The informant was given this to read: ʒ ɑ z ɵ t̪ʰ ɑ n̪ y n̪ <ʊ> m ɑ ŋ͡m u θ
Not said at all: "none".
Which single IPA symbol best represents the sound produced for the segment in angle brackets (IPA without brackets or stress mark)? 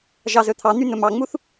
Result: ɵ